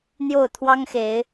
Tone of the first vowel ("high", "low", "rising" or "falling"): falling